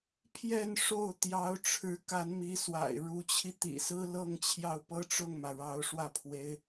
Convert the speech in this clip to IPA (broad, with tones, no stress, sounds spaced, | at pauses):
pʰ j ɛ˥˧ n ʂ o˥˩ ʊ̯ t̪ j ɑ˧˥ ʊ̯ ʈ͡ʂʰ ɻ̩˧˥ k a˧˥ n m i˧˥ s w a̰˨˩ ɪ̯ ɻ u˧˥ t͡ɕʰ i˧ t̪ ḭ˨˩ s ɹ̩˥ l ɤ˥˧ ŋ t͡ɕʰ j ɑ˥˧ ʊ̯ p ɤ˥˧ ʈ͡ʂ ʊ˥˩ ŋ m ä˩ ɻ ɑ˧˥ ʊ̯ ʂ w ä˥˩ pʰ w e˧˥ ɪ̯